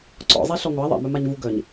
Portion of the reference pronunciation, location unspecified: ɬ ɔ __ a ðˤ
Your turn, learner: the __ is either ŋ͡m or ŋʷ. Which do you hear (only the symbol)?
ŋʷ